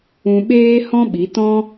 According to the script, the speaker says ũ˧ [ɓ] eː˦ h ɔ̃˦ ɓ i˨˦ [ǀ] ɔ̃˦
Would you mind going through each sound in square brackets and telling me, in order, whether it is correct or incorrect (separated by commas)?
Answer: correct, incorrect